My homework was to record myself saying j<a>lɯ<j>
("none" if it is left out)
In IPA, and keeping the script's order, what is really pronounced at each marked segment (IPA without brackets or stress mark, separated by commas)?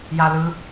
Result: a, none